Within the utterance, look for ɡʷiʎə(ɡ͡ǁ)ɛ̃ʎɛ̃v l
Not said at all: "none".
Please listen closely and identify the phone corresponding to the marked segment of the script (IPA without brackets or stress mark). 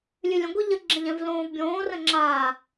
ɡ͡ǁ